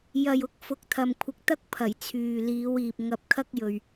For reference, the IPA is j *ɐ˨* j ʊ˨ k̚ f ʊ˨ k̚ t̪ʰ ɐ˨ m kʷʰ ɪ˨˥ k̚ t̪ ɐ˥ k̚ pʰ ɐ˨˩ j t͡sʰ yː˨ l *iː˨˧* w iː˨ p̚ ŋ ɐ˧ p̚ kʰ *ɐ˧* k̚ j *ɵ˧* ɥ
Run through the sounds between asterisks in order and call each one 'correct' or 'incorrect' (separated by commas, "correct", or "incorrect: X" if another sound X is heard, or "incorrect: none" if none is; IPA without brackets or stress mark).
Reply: correct, correct, incorrect: ɐ˥, incorrect: ɵ˨